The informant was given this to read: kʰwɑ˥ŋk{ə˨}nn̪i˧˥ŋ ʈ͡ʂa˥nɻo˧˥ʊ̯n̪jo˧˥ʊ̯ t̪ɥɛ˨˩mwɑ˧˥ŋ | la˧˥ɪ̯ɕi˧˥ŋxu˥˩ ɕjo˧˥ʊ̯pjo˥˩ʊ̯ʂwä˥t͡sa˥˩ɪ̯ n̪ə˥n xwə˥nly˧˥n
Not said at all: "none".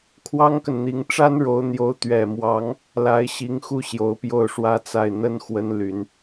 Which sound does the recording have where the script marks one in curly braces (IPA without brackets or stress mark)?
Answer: ə˨